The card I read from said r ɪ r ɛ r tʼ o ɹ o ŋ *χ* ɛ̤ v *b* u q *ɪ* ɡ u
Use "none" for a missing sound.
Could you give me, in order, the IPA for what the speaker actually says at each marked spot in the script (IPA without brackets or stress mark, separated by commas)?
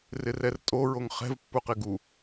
χ, pː, ɪ